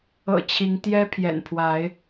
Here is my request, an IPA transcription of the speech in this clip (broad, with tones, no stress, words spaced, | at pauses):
ɤ̰˨˩ t͡ɕʰi˨˦ŋ t̪jɛ˦ pʰjɛ̰˨˩npʰwa˨˦ɪ̯